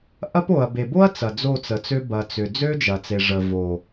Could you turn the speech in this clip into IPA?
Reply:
ʔ ɐ˦ p o˨ ɐ̯ b e˨ b o˦ ɐ̯ t͡s ɐ˨ d͡z o˦˨ t͡s ə˨ t͡s ø˦ b ɐ˨ t͡s ʏ˨ d͡z ø˦ d͡ʒ ɐ˨ t͡s e˨ ʐ ə˨ v o˨

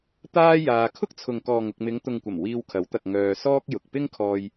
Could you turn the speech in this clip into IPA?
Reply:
t̪ aː˥ j aː˧ kʰ ʊ˥ k̚ t͡sʰ ʊ˨ ŋ k ɔː˨ ŋ ʊ˨ k̚ m ɪ˨˧ ŋ t̪ ʊ˨ ŋ kʷ ɐ˨˩ m w iː˧ w kʰ ɐ˨˥ w t̪ ɐ˨ k̚ ŋ œː˧ s ɔː˥ k̚ j ʊ˨ k̚ p ɪ˥ ŋ kʰ ɔː˧ j

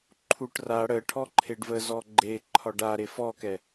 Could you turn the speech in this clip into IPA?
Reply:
ǃʰ u ʈ r a ɽ ə ʈʰ ɔ ǃʰ e ɖ v ə z ɔ ɡ͡ǃ e ǃʰ ɒ ɖ a ɾ e f ɔ k ɛ

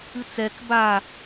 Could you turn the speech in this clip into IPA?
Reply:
ɨ t͡s ɛ k b a

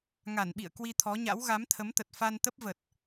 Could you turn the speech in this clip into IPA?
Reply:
ŋ a˧˩ n ɓ ḭ˧˨ ə̯ k w i˧ t̪ʰ ɔ˨˦ ɲ a̰˧˥ w ɣ a˨˦ m t̪ʰ ə˨˦ m t̪ ə˨˩ t̚ f a˧ n t̪ ə˦˥ p̚ v ə˨˩ t̚

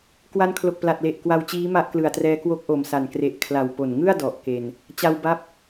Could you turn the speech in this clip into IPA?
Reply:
k w a˧ n kʰ l o˨˩ k̚ p l a˨˩ t̚ l e˨˩ ʔ k w a˧ w t͡ɕ iː˦˥ m a˥˩ ʔ k l ɯ˨˩ a̯ t r ɛː˦˥ k w o˦˥ k̚ ʔ o˨˩ m s a˨˩ n k r e˨˩ ʔ kʰ l a˨˩ w p o˨˩ n ŋ ɯ˥˩ a̯ d ɔ˨˩ ʔ k e˧ n | t͡ɕ a˧ w b a˦˥ p̚

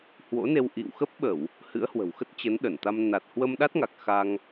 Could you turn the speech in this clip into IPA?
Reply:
h w o̰˧˥ n e˧ w ʔ ḭ˧˨ w x ə˦˥ p̚ ɓ ə˧˩˨ w | h ɨ̰˧˥ ə̯ h w ə̤˨˩ w x ə˦˥ t̚ t͡ɕ ə˨˦ n ɗ ə˧˩ n t̪ a˧ m n a˨˩ t̚ h w ə˧ m ɗ a˦˥ t̚ ŋ a˨˩ k̚ x a˧ ŋ

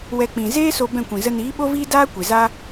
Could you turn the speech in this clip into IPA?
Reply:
w ɛ˧ k͡p ĩ˨ z eː˦ s o˧ b ɛ̃˦˨ kʷ ĩ˨ z ə˧ n iː˨˦ ɓ o˦ v iː˦ d aː˦ kʷ e˨ z a˦

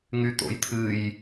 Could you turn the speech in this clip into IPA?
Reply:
ŋ y t̪ o̰ j t̪ʰ ɨ j

